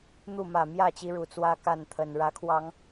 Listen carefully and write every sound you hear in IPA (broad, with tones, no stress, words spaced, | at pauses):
n̪u˥˨ mä˨˩mjä˥˨t͡ɕi˨˦ ɻu˨˩t͡swä˦ ka˥˨nt̪ʰə˨˩n ɻä˨˦kʰwɑ˨˦ŋ